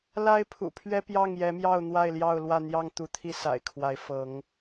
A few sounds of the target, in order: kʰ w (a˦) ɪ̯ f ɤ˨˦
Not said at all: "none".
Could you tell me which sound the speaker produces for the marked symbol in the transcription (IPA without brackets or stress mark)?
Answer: a˨˦